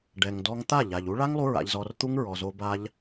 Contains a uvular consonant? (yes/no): no